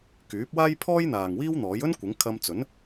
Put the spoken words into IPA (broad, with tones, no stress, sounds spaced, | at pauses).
k yː˨˥ p̚ w aː˥ j pʰ ɔː˥ j n̪ aː˨ ŋ w iː˥ w n̪ ɔː˨˥ j ɵ˥ n kʷ ɪ˨˥ ŋ kʰ ɐ˧ m t͡s ɵ˨˥ n